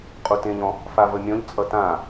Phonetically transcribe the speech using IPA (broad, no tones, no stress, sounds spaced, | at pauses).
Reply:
qʼ u t ẽ ʎ ɔ̃ | f a v ə mʲ ɔ̃ ʎ t͡sʼ ʌ t ã